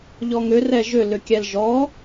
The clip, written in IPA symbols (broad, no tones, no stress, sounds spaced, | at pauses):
ʎ ɔ ŋ ʏ r ɛ ʒ ʏ l ʏ kʲ ɛ l ʒ ɔ